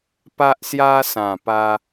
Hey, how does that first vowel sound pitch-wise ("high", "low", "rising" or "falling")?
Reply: high